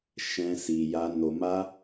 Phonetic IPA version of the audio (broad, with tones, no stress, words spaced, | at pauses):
ʃɛ̃˦si˧ja˦ no˧ma˦